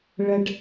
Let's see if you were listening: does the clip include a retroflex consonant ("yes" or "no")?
yes